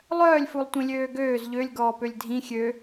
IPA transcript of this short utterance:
lˠœːlʲ fulˠtʷĩlʲøːɡøːz ʎølʲ ɡɔːpølʲdʱĩ xʲø

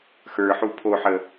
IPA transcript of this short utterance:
xə˞ħu pʰoħə

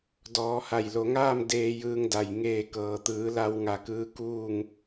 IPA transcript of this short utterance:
dɔː˩˧ha˧˩jlo˩˧ŋaː˥˨m deː˧ jɯː˧ŋda˩j ŋeː˧˩kɤː˩t̪ɯː˩˧ la˧w ŋa˧˩kɯː˧ kuː˥˨ŋ

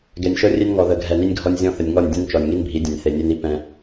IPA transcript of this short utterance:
ɡɛ˨nʲʃɤ˦rʲe˦nŋɔ˨ ðə˨ɡʱɛ˨ni˦nʲɡʱɔ˦nʲ zʲɔ̃˦θə˨nʲŋɔ˦˨nʲ dʲɛ̃˦nt͡ʃɔ˨nʲŋi˦nbʱi˨˦ dʲɛ̃˨nʲ θe˨nʲe˦ni˦ pɛ̃˦

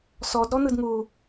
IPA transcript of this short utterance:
sɔdɾɔ n̪ɯdŋu

